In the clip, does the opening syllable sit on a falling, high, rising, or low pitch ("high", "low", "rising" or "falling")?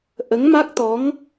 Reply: rising